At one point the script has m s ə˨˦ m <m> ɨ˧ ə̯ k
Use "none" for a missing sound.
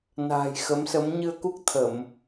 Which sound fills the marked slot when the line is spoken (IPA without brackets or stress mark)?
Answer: ɲ